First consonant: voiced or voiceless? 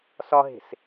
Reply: voiceless